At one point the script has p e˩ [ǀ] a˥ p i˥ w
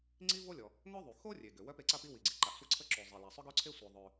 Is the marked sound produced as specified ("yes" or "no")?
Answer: yes